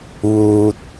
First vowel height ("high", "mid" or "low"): high